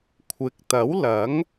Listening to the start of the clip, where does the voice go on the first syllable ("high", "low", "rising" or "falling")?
rising